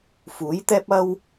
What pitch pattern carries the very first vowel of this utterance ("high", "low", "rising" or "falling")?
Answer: rising